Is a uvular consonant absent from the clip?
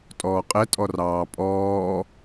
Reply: no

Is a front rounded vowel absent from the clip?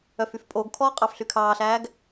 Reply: no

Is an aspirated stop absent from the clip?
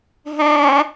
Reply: yes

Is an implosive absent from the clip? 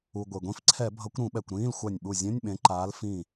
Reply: no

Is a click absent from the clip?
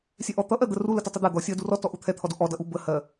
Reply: yes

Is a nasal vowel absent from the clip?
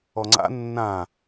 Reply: no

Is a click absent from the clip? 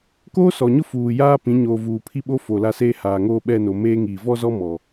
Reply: yes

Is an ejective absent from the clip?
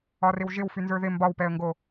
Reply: yes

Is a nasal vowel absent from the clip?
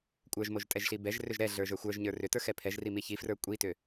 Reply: yes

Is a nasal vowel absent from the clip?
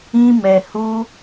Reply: no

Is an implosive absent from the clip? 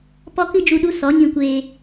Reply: no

